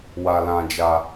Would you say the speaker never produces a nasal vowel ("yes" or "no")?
no